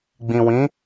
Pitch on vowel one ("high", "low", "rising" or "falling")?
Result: low